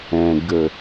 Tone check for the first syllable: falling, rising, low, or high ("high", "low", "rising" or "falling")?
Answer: low